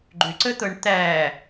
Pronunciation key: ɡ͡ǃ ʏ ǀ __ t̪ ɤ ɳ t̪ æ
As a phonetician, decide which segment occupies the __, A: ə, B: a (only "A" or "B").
A